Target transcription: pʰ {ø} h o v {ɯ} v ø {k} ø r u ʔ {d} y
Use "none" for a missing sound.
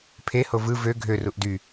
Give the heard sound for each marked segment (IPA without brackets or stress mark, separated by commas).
e, ɯ, ɡʱ, d